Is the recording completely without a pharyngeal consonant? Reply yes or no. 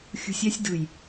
yes